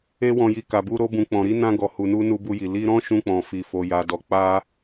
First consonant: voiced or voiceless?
voiced